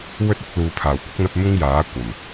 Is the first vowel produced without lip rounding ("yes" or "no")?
no